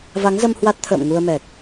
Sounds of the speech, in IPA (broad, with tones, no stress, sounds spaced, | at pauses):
v a˨˦ ŋ z ə˧ m h w a˦˥ t̚ t̪ʰ ə̰ː˧˨ m ŋ u˧ ə̯ m ɛ˨˩ k̚